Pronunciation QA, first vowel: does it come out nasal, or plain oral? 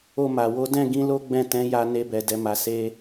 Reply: oral